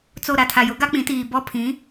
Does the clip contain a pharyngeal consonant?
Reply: no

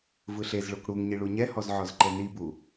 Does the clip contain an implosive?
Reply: no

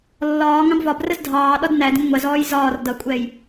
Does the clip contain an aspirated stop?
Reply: no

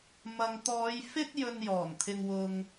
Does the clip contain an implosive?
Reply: no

